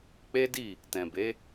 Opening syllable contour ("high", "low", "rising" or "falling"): high